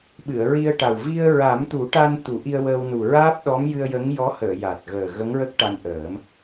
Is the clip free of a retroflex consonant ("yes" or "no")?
no